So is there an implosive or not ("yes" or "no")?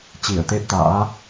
no